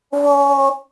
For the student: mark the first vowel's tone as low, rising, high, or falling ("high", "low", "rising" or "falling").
high